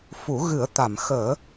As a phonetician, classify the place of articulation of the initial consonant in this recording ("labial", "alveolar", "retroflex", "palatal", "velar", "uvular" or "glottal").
labial